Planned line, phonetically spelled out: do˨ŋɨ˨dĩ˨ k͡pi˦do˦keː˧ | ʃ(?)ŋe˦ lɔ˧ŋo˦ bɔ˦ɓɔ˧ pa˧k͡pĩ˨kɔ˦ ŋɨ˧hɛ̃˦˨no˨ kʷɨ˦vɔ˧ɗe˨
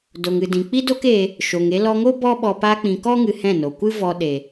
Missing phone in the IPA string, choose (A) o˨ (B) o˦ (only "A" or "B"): A